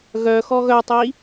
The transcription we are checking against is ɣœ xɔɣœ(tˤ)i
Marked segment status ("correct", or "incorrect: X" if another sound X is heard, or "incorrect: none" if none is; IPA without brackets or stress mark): correct